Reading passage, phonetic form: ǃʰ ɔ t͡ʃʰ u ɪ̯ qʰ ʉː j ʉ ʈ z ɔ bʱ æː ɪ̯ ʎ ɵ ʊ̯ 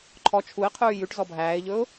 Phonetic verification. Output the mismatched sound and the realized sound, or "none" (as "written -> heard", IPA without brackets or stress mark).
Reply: none